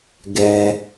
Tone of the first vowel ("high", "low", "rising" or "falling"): low